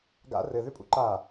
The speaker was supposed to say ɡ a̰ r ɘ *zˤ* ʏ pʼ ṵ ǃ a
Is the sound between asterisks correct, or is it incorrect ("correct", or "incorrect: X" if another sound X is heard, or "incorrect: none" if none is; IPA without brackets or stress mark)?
incorrect: ð